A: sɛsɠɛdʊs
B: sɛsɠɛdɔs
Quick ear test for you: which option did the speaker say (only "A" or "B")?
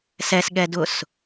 A